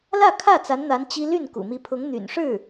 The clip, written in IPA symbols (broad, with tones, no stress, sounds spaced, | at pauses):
l ä˥˧ kʰ ä˥˩ t͡s a˧˥ n n̪ a˧˥ n t͡ɕ i˥ l y˥˩ n k ṵ˨˩ m i˧˥ pʰ ʊ˧˥ ŋ n̪ y̰˨˩ n ʂ ɻ̩˥˩